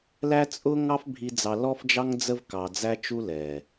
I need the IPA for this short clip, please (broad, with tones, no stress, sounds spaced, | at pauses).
l æ˦ t͡sʼ ʊ˦ ŋ ɑ˦ f bʱ i˧ d͡z ɑ˧ l ɔ˦ f d͡ʒ ɑ˦ ŋ d͡z ə˦ v k ɑ˨ d͡z æ˧ t͡ʃ u˦ l ɛ˨